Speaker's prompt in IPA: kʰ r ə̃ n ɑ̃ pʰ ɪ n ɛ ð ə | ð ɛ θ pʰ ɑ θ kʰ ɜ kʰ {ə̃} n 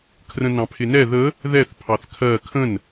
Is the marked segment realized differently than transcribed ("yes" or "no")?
no